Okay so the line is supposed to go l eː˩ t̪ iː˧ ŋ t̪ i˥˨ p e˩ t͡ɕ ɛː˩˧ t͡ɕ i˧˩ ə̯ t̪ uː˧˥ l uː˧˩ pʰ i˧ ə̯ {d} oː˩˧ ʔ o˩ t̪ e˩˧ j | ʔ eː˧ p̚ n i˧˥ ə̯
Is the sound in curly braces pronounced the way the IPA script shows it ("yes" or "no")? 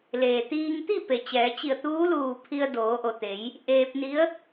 yes